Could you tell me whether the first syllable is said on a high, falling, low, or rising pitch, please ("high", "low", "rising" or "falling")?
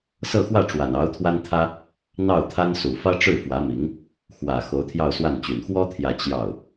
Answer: falling